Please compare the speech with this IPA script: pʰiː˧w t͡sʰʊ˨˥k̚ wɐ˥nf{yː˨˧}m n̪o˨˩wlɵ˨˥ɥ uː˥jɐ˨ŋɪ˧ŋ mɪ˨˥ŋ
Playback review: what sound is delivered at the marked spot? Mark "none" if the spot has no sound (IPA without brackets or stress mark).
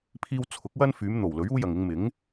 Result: yː˨˧